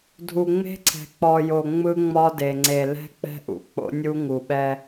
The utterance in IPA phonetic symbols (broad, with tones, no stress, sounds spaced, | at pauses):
dʱ u˨ ŋ͡m e̤˦ ǀʰ ɛ̤˨ k͡p ɔ˨ j o˨ ŋ͡m ɯ˦ ŋ͡m ɒ˦ d e˨ ŋ͡ǀ e˨ l ɛ̤˦ k͡p ɛ̤˦ ʔ ṵ˨ k͡p o̰˦ nʲ u˦ ŋ u˨ ɓ ɛ˦